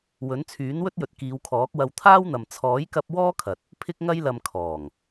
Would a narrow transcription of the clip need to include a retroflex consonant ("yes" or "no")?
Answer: no